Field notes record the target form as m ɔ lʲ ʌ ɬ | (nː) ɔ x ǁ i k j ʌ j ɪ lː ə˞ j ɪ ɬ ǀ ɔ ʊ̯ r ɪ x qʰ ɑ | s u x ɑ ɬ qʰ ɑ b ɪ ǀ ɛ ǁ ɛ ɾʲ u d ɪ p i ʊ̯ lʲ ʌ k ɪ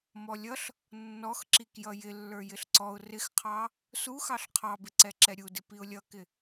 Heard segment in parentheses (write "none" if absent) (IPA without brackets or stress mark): nː